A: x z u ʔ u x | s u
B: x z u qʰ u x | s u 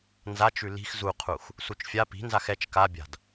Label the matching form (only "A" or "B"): B